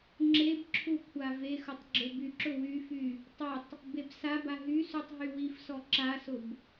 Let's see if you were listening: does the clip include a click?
yes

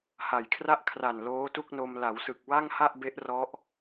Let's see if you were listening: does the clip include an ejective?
no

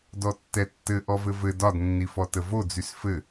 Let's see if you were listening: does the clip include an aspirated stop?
no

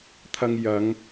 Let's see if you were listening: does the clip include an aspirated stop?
yes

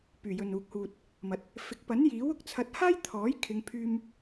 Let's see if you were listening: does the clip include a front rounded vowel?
yes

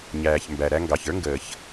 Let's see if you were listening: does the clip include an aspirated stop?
no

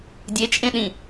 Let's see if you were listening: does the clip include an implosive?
yes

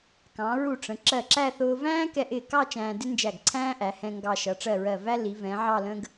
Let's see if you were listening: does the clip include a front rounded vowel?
no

